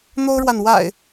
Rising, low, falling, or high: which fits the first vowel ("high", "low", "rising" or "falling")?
high